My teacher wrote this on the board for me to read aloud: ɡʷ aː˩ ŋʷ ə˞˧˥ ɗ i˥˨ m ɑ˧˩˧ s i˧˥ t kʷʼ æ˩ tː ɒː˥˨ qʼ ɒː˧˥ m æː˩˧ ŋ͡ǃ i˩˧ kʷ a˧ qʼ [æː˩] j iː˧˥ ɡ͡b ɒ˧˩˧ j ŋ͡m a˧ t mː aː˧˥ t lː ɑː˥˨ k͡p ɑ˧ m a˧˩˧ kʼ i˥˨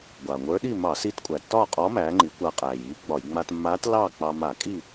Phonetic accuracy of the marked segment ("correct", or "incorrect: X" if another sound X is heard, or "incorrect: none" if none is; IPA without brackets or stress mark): correct